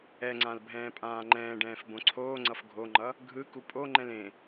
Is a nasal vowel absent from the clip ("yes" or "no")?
no